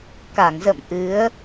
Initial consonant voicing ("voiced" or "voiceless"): voiceless